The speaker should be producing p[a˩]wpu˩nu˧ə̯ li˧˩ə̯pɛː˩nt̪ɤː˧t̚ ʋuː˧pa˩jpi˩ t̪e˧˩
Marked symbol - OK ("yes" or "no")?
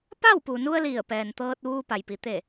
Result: no